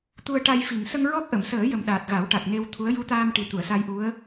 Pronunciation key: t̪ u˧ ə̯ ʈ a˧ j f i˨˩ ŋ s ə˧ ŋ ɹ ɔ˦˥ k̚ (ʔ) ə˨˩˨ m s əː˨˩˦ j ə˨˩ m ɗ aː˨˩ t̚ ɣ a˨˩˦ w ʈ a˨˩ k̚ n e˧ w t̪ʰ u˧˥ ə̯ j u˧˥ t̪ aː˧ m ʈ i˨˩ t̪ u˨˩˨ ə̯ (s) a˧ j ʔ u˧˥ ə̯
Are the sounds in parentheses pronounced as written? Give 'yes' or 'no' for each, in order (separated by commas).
yes, yes